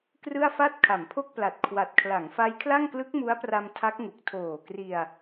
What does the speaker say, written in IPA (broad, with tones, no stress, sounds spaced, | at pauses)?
k r ɯ˥˩ a̯ f a˥˩ t̚ kʰ a˩˦ m pʰ o˥˩ k̚ p l a˨˩ t̚ kʰ w a˨˩ t̚ kʰ l a˩˦ ŋ f a˦˥ j kʰ l a˥˩ ŋ k l ɯ˦˥ k̚ m u˦˥ a̯ p r a˧ m tʰ a˦˥ k̚ ŋ u˨˩ k̚ tʰ oː˨˩ k r i˧ a̯